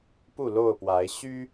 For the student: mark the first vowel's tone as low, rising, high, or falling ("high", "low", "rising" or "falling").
falling